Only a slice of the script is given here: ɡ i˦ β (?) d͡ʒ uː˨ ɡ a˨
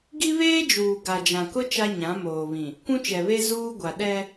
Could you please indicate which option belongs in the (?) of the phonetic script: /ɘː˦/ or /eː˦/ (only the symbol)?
eː˦